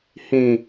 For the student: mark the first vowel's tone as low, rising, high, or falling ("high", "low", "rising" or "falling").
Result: low